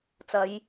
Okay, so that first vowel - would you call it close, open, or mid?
open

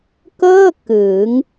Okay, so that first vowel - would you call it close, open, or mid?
mid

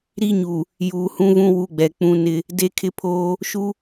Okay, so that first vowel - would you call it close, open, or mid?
close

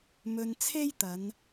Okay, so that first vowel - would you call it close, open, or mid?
mid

